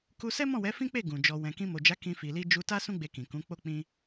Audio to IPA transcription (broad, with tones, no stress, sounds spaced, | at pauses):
k u˧ s ɛ˦ m ɔ̃˦˨ w ɛ˨˦ f ĩ˦ k͡p e˦˨ ɡ ũ˨ d͡ʒ ɔ˧ w ɛ̃˧ k ĩ˧ m o˨ d͡ʒ a˨˦ k ĩ˧ f i˨ l i˧ d͡ʒ u˧ t a˦ s ũ˦ ɡ͡b e˧ k ĩ˨ k ũ˨˦ k͡p o˦ k͡p ĩ˦